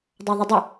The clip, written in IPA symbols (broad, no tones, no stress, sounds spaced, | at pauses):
dˤ a ðˤ ɘ dˤ ɘ